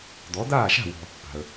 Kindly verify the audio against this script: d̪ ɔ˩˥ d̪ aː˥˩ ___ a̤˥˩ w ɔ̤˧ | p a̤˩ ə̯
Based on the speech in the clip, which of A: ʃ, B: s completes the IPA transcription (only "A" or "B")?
A